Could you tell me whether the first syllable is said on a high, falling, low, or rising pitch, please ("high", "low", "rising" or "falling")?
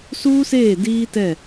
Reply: high